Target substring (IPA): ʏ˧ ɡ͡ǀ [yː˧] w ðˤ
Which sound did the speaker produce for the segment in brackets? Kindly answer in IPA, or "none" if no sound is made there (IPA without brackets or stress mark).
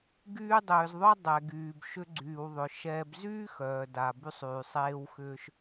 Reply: yː˩